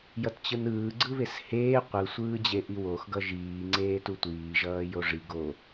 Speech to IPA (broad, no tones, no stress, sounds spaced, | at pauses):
j ʌ t t͡ɕ ɯ n ɯː ɡ͡ǀ ɯ β e s h eː qʷ ɯ sʷ ɯː d͡ʑ e ʔ i w o x ɡ ʌ ʒ iː ŋ͡ǀ eː t u tʷ iː ʒ ʌː j o ʐ i ɡ o